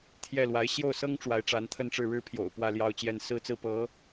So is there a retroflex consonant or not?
yes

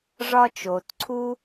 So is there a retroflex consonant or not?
yes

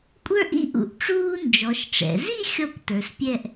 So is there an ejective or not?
yes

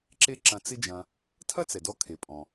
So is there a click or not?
yes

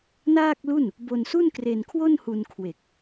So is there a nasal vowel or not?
no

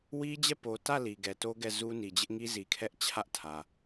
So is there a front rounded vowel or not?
no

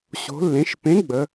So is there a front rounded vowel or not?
no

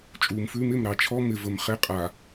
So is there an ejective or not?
yes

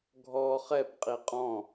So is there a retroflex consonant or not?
no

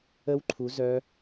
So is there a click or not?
yes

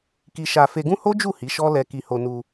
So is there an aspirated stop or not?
no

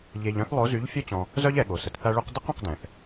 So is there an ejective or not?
no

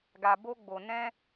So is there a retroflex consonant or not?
no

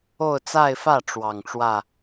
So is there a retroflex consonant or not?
yes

